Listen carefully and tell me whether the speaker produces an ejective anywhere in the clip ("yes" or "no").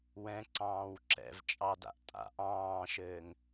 yes